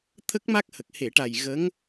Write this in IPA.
t̪ʰ ə˦˥ k̚ m a˦˥ k̚ h ə˨˩ k̚ h e˨˩˨ ʈ a˨˩ j ɣ ə˧˥ ŋ

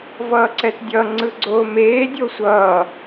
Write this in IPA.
v ʌː ǀ ɛ t dʲ ʌ ŋ͡ǀ ɯ ɡ͡ǀ oː m eː dʲ o sʷ ʌː

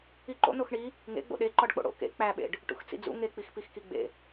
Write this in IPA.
i ǃ o̰ n o x ɳ i | ŋ ḛ ɡ͡b o̰ ɗ e ǃ ɒ ɖ k͡p o̰ ɽ o̰ k ḛ k͡p æ ɓ ḛ ɖ | ʈ ṵ x t͡s ḭ d͡z ṵ ŋ e k͡p i x p i x k i ɡ͡b ḛ

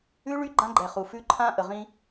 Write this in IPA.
ʉ˦ ɭ y˦ ɡ͡ǃ ã˦ ɡ͡ǃ ɛ˨ χ u˨ f ʉ˦ ǃʰ ã˦ ʔ ə˨ ʁ ĩ˦

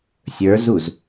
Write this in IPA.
sʲ ə˞ z u z

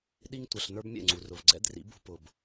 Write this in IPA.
ɗ i˧ ŋ tʷ ʌ˨ ɬ n ə˞˦ b mʲ ɛ̰˦˨ ŋ͡ǀ u˨ r ʊ˨ v ɡ͡ǀ ɛ̰˦ d r ḭ˨˦ b ṳ˧ p ʊ˨ b

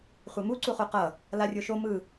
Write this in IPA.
χʷ e m u ǀ u χ u q ʌ | l a rʲ o ʃ o m ɯ

